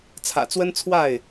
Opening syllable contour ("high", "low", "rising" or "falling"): low